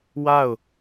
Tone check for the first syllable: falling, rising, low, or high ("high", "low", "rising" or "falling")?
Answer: falling